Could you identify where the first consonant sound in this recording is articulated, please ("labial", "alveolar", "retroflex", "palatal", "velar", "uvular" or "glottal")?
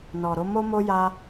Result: alveolar